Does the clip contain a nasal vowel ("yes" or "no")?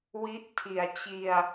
no